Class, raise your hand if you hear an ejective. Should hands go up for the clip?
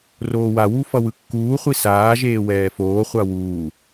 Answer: no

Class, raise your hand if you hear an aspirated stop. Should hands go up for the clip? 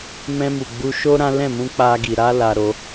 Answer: no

